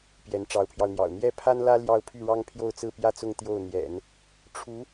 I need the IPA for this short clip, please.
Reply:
p j ɛ˧˥ n ʈ͡ʂ ɑ˧˥ ʊ̯ pʰ j ɑ˧ ʊ̯ n̪ j ɑ̰˨˩ ʊ̯ n̪ j ɛ˥˩ pʰ a˥ n l ä˥ l j ɑ˥˧ ʊ̯ pʰ y˥˩ ɻ ɑ˥ ŋ pʰ j o˥˧ ʊ̯ t͡s ɹ̩˥˩ p j ä˥ t͡s ʊ˥˧ ŋ t̪ j o˥˩ ʊ̯ n̪ j ɛ̰˨˩˦ n | ʈ͡ʂʰ u˧˥

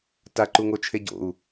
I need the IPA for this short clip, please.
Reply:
t a ǃ u ŋ o t͡ʃʰ e ɟ o̰ u̯

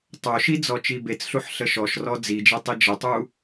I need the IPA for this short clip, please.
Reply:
tˤ o ʃ i d͡z ɔ t͡ʃ i b e t͡s ɬ u ħ ɬ ə ʃ ɔ ʃ r ɔ d͡z i d͡ʒ e tˤ i d͡ʒ ə tˤ u

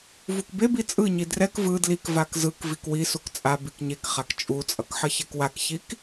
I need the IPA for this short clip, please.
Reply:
v u k b e b i t͡sʼ ɯ ɲ i d r ɛ k v ɯ d l i k v a k z ɯ k v i k w i s u k t͡sʼ a b i k ɲ e k χ a k t͡ʃʼ u t͡sʼ ʌ k ħ ʌ ç ɛ k w a k ç i k

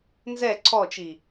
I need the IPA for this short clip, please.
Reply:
n z ɛ ǀʰ ɔ t͡ʃ i

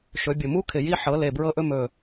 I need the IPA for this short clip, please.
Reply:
ʃ ɵ˩˧ bʲ o˨˩ m u˦˥ kʰ ɪ˨˩ j i˧ ħ ɤ˩˧ l e˨˩ b ɹ ɤ˧ ʔ ɵ˧ m ɵ˨˩

